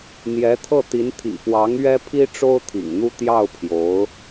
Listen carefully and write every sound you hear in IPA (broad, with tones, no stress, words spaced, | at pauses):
n̪jɛ˧˥t̪ʰɤ˥˩t̪i˧˥n t̪ʰḭ˨˩pwɑ˧˥ŋ ɥɛ˥pʰi˥ ʈ͡ʂo˥ʊ̯t̪ʰḭ˨˩ŋn̪u˥˧ t̪jɑ˥˩ʊ̯pʰjo˧˥ʊ̯